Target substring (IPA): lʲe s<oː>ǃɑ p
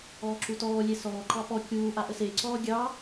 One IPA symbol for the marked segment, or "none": ɔː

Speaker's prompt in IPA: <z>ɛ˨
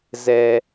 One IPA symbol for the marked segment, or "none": z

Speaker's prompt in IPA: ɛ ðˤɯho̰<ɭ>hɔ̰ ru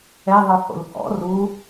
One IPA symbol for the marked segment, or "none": l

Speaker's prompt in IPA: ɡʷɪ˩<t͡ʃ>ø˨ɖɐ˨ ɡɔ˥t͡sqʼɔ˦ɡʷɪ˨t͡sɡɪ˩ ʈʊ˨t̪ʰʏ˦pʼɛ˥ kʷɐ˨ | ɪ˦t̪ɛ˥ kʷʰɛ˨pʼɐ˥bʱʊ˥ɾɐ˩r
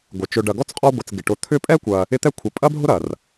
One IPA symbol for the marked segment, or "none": t͡ʃ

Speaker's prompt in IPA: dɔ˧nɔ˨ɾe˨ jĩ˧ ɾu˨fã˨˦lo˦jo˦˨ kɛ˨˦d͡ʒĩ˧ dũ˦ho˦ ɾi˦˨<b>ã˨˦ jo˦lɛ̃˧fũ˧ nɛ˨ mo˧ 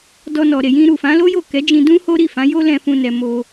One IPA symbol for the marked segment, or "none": f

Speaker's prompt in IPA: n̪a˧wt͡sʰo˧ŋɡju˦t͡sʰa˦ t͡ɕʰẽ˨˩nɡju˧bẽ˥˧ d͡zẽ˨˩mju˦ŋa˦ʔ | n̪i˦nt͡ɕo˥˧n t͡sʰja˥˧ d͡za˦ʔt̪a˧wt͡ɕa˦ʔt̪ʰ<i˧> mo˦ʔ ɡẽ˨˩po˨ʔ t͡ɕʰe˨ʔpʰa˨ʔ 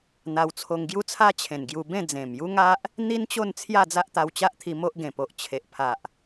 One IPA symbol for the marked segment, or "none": i˧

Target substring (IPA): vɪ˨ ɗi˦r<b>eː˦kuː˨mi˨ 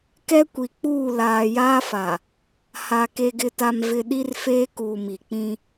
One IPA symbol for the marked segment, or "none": f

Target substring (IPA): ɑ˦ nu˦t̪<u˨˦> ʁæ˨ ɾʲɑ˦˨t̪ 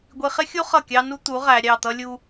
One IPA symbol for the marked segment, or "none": u˨˦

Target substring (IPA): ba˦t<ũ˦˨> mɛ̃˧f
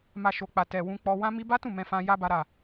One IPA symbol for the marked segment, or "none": ũ˦˨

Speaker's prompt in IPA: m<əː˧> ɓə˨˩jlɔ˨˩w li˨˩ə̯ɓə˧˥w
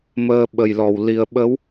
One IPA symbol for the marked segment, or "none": əː˧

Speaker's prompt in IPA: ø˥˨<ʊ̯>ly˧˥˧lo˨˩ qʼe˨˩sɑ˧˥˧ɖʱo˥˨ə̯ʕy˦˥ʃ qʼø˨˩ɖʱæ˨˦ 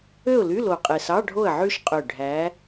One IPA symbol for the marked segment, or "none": ʊ̯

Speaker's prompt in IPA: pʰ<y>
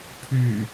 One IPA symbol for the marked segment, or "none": y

